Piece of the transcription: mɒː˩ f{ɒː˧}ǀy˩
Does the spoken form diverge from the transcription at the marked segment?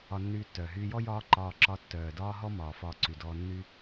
no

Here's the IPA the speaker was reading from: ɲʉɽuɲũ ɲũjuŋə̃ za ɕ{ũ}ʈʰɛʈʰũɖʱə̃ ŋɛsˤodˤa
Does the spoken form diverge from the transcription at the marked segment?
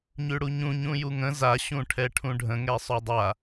no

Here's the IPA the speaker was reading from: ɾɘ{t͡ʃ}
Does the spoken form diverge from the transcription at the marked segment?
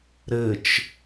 no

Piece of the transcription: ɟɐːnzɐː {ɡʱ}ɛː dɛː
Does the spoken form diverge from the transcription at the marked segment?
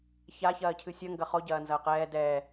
yes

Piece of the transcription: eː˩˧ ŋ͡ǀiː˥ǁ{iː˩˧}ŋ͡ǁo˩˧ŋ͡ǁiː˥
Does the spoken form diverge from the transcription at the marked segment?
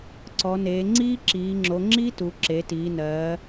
no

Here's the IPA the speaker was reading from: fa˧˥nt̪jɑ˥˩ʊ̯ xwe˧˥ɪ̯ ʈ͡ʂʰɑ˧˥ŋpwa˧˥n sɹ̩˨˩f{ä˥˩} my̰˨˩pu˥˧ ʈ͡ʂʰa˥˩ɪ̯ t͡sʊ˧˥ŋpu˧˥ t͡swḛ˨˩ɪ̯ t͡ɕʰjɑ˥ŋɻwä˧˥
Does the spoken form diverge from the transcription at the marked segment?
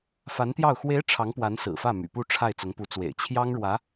no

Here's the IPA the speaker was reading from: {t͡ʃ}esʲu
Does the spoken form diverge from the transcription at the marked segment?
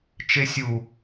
no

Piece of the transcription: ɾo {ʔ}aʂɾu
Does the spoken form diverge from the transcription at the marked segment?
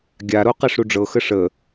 yes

